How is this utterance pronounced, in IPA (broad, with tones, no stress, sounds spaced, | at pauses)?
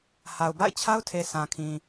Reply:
h a˨ ʊ̯ b a̰˦˨ ɪ̯ t͡ɕʰ a˦ ʊ̯ tʰ e˨ sʰ ã˨ kʰ ĩ˨